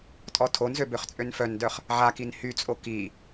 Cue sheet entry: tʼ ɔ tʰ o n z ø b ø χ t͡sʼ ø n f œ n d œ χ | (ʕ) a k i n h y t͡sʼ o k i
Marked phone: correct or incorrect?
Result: correct